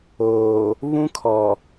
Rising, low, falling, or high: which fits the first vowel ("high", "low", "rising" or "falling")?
low